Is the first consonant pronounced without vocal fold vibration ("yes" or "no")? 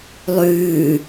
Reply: no